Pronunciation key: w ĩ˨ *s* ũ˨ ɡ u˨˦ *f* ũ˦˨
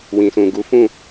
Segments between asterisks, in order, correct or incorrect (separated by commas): correct, correct